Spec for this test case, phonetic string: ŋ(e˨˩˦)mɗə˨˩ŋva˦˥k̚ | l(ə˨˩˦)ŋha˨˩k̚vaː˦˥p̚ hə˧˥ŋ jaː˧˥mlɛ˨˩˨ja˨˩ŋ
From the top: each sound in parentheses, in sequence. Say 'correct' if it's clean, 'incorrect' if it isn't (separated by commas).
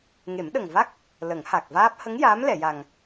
correct, correct